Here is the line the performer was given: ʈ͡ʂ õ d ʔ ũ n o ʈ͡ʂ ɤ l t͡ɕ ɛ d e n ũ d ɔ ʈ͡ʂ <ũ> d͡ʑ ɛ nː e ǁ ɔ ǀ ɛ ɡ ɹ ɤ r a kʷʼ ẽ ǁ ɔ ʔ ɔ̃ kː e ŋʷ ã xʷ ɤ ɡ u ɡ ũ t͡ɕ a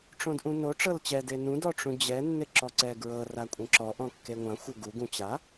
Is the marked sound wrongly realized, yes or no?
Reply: no